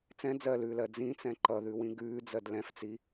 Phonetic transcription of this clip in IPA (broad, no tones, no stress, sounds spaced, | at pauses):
t͡s ɛ̃ d͡z ɜ l ʉː l ɜ d͡z ĩ t͡s ɛ̃ ǃ ʌ ð ʉ w ĩ ɡ ʉː d͡z ɜ d l ɛ̃ f t͡s i